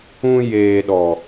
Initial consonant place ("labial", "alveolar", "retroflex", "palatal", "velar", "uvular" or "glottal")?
palatal